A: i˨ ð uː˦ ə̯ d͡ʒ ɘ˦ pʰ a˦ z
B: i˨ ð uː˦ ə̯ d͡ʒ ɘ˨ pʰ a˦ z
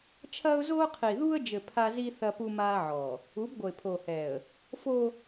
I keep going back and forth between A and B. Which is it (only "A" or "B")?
B